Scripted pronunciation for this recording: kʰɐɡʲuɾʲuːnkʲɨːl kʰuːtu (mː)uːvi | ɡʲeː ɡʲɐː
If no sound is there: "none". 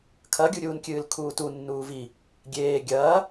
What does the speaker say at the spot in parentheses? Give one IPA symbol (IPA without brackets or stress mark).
nː